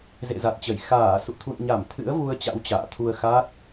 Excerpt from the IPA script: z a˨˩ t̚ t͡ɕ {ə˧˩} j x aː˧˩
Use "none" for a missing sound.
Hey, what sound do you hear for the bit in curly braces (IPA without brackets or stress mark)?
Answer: ə˧˩